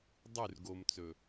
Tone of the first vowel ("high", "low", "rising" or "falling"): falling